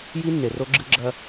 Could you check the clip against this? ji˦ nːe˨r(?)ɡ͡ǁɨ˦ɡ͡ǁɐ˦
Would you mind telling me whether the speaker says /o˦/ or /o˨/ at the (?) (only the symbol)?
o˦